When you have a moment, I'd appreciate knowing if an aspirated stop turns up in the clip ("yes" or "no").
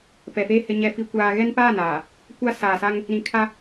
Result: yes